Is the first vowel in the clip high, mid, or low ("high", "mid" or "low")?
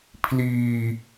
high